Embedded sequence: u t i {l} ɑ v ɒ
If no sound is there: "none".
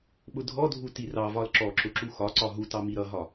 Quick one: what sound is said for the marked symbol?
r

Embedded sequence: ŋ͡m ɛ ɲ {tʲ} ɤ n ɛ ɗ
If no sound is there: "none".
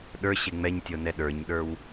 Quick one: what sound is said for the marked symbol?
tʲ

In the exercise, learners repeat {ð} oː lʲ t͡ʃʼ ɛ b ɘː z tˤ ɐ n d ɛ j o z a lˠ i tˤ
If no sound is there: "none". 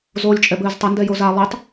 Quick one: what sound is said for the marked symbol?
z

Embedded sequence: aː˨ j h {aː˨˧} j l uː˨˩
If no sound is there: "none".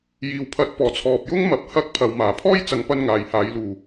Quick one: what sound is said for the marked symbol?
aː˨˧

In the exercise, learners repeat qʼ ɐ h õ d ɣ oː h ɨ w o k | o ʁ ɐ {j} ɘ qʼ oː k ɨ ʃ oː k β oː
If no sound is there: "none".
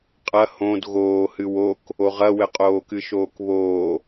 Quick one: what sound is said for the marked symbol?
w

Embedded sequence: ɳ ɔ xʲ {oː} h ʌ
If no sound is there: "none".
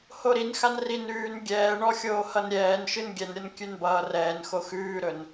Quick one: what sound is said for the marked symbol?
oː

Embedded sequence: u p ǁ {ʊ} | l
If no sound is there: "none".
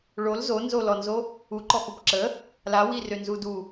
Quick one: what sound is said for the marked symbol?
ə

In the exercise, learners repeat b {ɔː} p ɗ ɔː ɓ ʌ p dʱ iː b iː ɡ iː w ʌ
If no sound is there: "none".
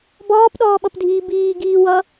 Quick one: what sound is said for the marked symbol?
ɔː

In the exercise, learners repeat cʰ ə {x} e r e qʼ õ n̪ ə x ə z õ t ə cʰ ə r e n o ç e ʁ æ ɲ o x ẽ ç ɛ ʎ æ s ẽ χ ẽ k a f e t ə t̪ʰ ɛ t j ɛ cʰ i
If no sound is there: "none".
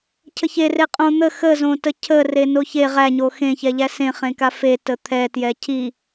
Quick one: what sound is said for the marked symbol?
ç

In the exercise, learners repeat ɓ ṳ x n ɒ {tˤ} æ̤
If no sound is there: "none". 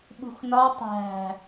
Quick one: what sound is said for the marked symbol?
tˤ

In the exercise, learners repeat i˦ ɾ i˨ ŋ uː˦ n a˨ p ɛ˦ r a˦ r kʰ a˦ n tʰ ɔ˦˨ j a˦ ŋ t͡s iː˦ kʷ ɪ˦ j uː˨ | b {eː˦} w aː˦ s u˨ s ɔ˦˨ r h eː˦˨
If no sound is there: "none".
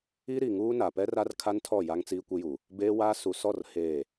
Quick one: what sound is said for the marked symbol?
eː˦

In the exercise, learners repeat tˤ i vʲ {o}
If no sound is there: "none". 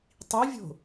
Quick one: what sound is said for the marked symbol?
o̤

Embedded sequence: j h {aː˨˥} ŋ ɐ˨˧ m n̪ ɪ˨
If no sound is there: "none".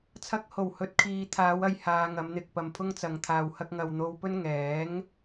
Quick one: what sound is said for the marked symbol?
aː˧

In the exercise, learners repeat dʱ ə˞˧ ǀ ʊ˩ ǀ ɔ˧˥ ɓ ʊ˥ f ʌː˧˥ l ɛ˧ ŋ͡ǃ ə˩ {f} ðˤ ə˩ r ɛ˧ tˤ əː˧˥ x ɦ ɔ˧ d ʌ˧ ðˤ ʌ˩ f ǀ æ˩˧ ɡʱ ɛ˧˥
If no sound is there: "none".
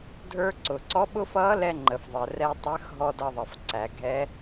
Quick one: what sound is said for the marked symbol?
f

